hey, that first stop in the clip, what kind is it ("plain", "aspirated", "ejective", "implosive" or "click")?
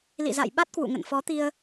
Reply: implosive